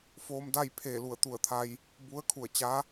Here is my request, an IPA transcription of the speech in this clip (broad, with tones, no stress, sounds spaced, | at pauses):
f oː˧ m d a˥˨ j pʰ eː˧˩ l u˧˩ ə̯ t̪ u˧˩ ə̯ t̪ʰ a˧ j | b u˧˥ ə̯ kʰ u˧˩ ə̯ t͡ɕ a˧˥